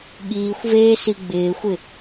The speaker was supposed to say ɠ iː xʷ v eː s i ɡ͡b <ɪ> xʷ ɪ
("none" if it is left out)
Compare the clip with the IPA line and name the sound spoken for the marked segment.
ɪː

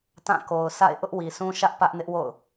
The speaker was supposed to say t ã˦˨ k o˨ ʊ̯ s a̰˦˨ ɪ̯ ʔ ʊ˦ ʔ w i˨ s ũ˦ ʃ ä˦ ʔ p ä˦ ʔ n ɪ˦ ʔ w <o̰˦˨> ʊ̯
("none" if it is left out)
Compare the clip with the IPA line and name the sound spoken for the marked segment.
o̰˦˨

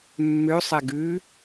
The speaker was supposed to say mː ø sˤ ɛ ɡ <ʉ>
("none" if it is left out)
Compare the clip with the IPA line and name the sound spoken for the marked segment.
ʉ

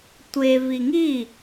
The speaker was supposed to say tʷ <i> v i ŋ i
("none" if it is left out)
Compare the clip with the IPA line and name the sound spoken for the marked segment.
e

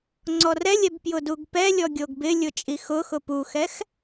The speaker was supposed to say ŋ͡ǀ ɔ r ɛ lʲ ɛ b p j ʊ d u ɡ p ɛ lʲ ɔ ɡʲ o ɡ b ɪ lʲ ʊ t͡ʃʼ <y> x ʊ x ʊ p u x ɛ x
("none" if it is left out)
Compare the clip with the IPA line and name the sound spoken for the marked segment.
i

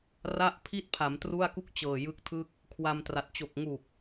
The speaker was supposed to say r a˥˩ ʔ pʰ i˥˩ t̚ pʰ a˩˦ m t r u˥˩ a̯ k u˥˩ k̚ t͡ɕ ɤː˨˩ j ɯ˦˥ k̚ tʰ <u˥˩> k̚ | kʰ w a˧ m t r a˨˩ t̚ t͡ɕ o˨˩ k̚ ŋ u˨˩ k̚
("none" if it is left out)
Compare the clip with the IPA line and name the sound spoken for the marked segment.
ɯ˥˩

